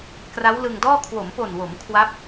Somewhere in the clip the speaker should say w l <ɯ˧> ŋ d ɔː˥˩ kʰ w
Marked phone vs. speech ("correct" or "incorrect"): correct